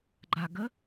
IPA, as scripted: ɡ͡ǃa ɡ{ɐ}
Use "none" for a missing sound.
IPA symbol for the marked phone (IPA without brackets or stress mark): ə